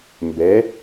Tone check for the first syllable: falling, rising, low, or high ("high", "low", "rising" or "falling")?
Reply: rising